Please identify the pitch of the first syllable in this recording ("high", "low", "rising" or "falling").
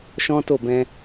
high